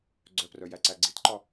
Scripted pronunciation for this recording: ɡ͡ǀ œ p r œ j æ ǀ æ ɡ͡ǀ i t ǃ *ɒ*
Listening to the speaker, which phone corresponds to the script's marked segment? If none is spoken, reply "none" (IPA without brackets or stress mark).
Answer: ɒ